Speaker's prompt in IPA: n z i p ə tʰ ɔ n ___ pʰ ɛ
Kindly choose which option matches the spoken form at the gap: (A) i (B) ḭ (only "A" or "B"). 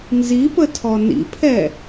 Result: B